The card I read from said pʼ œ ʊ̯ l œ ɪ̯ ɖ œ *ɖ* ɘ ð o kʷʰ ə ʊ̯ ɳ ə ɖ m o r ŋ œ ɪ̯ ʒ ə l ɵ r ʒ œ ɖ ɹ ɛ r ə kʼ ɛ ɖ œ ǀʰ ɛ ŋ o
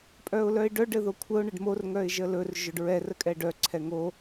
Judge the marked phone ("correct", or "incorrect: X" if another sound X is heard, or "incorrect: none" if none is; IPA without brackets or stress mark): correct